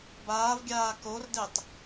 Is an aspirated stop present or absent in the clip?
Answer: absent